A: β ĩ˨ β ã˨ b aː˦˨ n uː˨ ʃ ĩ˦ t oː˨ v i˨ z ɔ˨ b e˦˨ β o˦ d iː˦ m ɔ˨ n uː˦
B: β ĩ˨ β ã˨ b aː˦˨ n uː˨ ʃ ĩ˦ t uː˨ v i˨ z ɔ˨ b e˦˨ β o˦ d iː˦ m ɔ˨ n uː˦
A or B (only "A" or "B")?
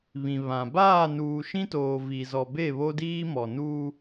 A